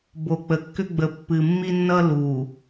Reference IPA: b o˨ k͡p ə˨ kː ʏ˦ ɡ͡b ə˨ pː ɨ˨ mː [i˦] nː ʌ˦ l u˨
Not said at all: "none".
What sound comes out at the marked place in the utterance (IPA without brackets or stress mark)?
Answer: i˦